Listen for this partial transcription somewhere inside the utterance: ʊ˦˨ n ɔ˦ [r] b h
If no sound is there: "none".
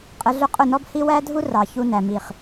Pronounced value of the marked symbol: none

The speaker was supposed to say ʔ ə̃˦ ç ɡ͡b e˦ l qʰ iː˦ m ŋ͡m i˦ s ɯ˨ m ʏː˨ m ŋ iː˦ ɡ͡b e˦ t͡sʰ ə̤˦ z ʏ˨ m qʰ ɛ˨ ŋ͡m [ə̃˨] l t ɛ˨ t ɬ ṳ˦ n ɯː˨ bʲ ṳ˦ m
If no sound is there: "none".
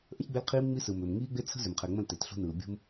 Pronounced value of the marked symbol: ə̃˦˨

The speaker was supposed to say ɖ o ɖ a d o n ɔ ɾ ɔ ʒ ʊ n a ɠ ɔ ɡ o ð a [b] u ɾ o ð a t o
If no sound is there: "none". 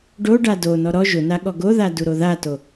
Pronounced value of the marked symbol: d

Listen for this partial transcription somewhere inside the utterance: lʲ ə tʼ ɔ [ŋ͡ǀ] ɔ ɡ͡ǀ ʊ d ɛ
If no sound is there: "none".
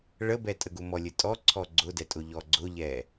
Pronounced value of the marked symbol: ǀʰ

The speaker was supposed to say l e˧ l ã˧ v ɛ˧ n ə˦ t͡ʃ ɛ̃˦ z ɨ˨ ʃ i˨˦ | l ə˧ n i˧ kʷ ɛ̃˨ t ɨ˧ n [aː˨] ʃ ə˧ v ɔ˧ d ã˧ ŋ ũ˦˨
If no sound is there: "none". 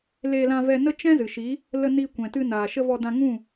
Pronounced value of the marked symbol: aː˨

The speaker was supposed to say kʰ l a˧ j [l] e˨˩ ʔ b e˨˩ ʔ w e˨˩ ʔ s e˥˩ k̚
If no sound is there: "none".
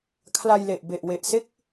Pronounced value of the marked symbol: l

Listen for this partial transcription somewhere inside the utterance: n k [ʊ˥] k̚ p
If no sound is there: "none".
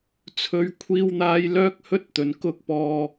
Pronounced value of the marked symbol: ʊ˥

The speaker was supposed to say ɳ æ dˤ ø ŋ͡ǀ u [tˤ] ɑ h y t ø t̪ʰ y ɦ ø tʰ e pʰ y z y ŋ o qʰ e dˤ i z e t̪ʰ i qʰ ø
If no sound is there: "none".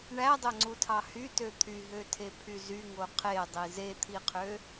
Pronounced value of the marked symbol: tʰ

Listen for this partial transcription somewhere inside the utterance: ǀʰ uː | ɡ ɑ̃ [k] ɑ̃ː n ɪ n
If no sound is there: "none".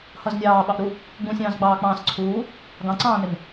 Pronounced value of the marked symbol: ǀ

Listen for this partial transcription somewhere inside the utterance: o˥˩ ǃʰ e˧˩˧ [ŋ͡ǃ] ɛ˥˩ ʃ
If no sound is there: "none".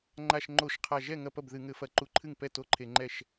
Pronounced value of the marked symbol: ŋ͡ǃ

